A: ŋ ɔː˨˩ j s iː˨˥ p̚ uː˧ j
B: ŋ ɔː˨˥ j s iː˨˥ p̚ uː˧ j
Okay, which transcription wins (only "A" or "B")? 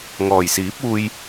A